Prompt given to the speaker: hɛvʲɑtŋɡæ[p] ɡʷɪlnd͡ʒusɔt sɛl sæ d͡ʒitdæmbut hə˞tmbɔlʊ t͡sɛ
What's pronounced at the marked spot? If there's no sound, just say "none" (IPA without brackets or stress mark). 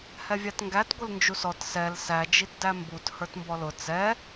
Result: t